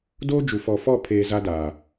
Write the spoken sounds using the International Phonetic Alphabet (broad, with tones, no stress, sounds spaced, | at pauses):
d oː˦ d͡ʒ u˨ f ɔ˨ f ɔ˦˨ pʰ eː˦ z a˦ d aː˨